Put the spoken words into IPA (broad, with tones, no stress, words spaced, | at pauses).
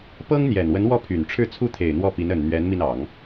pɤ˥ŋ n̪jɛ˨˩nwə˧˥nwɔ˥˩ pʰy˨˩nʈ͡ʂʰɻ̩˥˧ t͡sʰu˥˩t̪ʰe˨˩ɪ̯ n̪wɔ˥˩pi˧˥n ə˨˩n n̪ɥɛ˧˥nmi˧nɑ˨˩˦ŋ